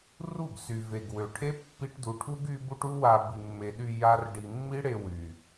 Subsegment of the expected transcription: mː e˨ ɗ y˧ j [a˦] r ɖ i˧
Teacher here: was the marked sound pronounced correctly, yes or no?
yes